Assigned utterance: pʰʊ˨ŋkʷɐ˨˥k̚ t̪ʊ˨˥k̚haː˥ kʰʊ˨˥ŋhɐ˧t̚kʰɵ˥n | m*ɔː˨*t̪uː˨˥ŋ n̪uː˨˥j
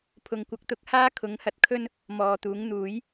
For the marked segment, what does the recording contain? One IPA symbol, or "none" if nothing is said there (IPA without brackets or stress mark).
ɔː˨